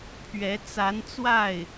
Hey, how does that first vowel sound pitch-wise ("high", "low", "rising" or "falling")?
rising